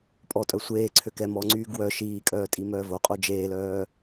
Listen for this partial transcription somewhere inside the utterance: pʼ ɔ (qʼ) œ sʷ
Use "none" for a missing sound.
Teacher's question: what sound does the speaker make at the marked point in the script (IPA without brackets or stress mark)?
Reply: tʼ